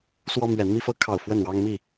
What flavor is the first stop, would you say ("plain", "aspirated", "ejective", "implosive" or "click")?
aspirated